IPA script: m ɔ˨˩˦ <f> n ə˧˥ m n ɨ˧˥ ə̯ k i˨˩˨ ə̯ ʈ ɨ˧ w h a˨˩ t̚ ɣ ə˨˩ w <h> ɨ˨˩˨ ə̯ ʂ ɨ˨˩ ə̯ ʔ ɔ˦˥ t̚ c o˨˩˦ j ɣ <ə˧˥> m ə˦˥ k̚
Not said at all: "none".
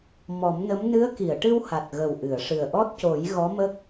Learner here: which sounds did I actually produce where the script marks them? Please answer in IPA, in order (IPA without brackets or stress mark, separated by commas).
m, ʔ, ɔ˧˥